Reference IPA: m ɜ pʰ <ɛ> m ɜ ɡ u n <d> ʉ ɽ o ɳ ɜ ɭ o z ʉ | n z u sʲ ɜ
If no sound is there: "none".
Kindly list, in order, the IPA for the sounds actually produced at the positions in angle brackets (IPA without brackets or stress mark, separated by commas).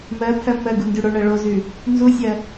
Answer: ɜ, d